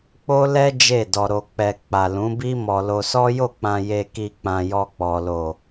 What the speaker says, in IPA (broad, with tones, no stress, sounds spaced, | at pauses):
k͡p o˦ l ɛ˦ d͡ʒ e˦˨ d ɔ˧ ɾ o˧ k͡p ɛ˧ k͡p a˨ l ũ˨˦ b i˦ m ɔ˧ l o˧ s ɔ˦ j o˦˨ k͡p ã˧ j e˧ k i˧ k͡p ã˧ j ɔ˧ k͡p ɔ˨ l o˨